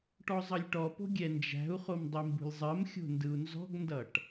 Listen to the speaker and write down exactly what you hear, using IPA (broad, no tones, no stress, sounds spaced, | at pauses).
ʈ ɔ zˤ ʌ lʲ ʈ ɔ p o̤ ɡʲ ɛ n d͡ʒ æ̤ u̯ χ o m dˤ i m b ṳ lʲ zˤ ɜ m xʲ o̤ n d ɯ u̯ n z ɔ̤ ɡ n d ʌ ʈ